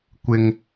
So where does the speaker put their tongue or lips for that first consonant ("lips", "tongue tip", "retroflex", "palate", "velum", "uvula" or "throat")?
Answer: velum